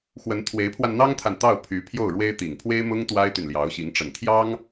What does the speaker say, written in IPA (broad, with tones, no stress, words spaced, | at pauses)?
xwə˧˥n t̪ʰwe˧˥ɪ̯pʰwa˧nn̪ɑ˥ŋt̪ʰa˨n t̪ɑ˥˩ʊ̯pʰy˧˥ pʰjo˥˩ʊ̯ɻwe˥ɪ̯ t̪i˨˩ŋpʰwe˥ɪ̯mʊ˥ŋ t̪wa˥ɪ̯t̪y˨nljɑ˧˥ʊ̯ɕi˧˥ŋ ʈ͡ʂə˨˩nt̪ʰjɑ˥ŋ